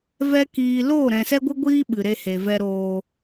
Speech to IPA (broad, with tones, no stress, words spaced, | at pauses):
vɛ˧ kiː˧ loː˦˨ɾɛ̃˨sɛ˦ɡʷɨ˦ ɡʷiː˦ ɓɨ˨ɾe˧he˨vɛ˧ ɾoː˨